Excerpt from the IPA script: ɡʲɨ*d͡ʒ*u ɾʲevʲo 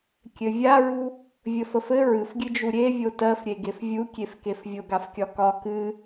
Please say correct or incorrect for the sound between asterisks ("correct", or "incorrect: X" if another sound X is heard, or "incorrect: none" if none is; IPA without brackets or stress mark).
correct